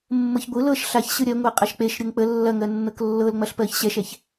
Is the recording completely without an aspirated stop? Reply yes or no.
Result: yes